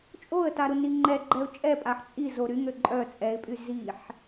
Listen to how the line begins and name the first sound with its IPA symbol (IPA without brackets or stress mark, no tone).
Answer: t͡ʃʼ